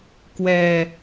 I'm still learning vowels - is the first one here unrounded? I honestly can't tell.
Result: yes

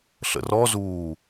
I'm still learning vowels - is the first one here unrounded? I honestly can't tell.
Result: yes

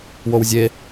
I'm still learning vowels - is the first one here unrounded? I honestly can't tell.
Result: no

